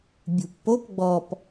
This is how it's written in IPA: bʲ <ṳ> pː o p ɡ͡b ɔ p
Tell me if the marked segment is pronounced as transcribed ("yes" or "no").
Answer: yes